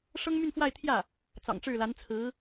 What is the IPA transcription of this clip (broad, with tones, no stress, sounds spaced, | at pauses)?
ʂ ɤ˥ ŋ m y˥˧ n f w a˥˧ ɪ̯ t̪ʰ j ä˥˩ | t͡s ɑ̰˨˩ ŋ ʈ͡ʂ ɻ̩˥˩ l a˧˥ n t͡sʰ ɹ̩˧˥